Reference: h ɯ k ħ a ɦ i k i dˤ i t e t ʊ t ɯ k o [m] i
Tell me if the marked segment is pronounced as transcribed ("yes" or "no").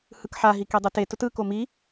yes